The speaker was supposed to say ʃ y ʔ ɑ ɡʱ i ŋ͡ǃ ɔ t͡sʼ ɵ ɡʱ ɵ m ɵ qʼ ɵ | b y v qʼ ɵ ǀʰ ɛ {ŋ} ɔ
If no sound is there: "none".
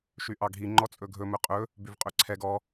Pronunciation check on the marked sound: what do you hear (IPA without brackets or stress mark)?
ɡ